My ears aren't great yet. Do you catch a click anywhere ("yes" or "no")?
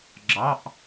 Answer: yes